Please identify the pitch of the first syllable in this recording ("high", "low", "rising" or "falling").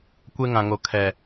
high